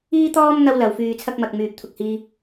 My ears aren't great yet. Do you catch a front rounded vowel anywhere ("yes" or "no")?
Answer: yes